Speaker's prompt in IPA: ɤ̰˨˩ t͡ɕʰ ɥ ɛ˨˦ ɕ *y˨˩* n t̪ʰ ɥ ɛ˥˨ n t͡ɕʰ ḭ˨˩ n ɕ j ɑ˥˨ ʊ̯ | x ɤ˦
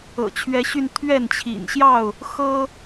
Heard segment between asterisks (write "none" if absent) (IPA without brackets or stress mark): y˧